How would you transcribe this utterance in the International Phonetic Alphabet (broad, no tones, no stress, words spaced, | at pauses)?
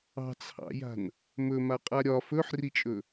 ɑ̤t͡sʰɑ̰ja̤n | mɵmaqʼa ɾʲɒ fɵħrit͡ʃʼɵ